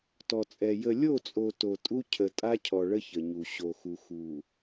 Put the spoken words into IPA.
tɔ˨t͡sʼɛ˨ jə˨lʲo˦˨t͡sʼo˨ to˨tʼu˦ cʰə˨ tʼa˦cʰɔ˨ ɭə˦çə˨ɲu˨ ɕo˨xu˨xu˨

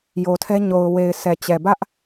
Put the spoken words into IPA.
jo˨tʰɛ˦ ɲo˨ʊ̯ we˨ɪ̯sʰɛ˨t͡ɕɛ˨bä˦ʔ

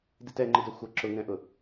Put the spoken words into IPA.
ditɛ ŋ͡ǃɪdœxʷʌ ǁʊŋɛ̃ʔʊ

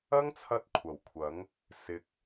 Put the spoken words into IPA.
ɐ˥ŋt͡sʰɐ˧t̚ kʷʰɐ˨˩wkʷʰɐ˨˥ŋ | sɪ˨k̚

